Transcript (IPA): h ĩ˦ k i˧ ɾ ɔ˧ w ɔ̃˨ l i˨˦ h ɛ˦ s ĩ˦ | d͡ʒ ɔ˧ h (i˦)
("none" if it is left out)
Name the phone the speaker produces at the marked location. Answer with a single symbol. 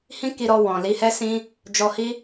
i˦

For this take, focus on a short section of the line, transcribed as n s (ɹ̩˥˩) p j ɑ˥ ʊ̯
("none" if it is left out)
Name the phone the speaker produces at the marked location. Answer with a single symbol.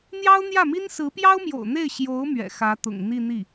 ɹ̩˧˥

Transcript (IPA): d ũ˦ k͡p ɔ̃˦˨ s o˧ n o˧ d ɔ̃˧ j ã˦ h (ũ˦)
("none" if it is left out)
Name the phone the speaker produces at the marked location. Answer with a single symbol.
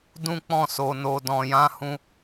ũ˦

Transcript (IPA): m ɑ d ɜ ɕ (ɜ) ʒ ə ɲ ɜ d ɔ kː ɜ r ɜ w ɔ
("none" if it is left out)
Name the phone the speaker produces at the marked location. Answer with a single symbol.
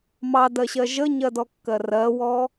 ɜ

